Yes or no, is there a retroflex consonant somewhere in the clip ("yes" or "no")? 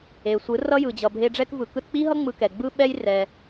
yes